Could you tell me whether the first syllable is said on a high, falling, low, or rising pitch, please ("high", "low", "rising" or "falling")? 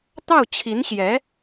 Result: falling